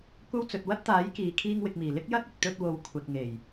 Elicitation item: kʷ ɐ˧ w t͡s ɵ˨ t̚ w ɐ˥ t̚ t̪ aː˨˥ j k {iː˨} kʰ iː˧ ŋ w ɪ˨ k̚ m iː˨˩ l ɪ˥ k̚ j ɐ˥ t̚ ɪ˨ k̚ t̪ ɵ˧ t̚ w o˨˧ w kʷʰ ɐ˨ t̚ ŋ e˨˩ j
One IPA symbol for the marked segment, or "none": iː˨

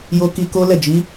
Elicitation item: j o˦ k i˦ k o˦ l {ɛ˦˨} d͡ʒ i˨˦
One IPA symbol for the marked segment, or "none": ɛ˦˨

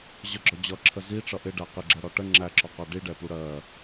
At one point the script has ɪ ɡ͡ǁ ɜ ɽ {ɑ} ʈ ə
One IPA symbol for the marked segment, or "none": ɒ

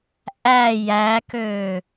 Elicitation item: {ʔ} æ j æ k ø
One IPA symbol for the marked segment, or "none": ʔ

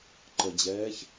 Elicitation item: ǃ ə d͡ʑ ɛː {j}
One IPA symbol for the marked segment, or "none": ç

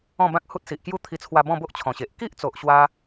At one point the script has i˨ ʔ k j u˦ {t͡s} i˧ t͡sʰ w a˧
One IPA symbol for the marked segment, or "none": t̪ʰ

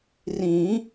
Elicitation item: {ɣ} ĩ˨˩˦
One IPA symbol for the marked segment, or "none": r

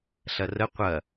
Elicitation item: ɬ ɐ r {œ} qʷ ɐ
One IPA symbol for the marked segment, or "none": ə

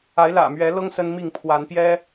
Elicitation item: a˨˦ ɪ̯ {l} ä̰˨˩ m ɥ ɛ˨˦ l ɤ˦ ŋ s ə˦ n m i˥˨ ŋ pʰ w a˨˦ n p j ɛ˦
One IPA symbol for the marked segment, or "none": l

